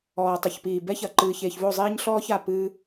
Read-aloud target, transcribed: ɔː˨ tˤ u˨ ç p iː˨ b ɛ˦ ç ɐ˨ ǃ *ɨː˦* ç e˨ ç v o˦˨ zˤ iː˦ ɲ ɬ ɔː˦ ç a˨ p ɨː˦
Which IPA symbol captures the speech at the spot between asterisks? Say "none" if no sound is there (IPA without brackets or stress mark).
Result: ɨː˨